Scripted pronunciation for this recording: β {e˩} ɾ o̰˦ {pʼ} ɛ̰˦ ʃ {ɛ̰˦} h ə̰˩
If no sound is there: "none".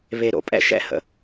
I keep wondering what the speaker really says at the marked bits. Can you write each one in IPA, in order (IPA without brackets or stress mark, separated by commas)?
e˨, pʼ, ɛ̰˦